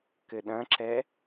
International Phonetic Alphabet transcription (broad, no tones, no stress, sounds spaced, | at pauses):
k ɘ ɗ ɐ̃ ǁ ɛ